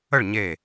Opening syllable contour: falling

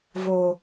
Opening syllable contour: low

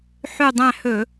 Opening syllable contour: falling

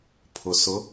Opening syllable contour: low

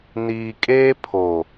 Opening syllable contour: low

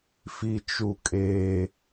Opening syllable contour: low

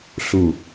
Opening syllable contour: low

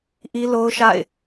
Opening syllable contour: high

